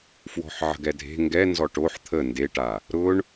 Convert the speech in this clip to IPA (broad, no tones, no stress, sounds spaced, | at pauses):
f w ɔ̤ ħ ʕ ə̤ ɡ ɛ dʱ e̤ ŋ ɡ ɛ n z ɔ ʈ o ħ t̪ʰ ə n d e ʈ a | ɾ ʊ ɳ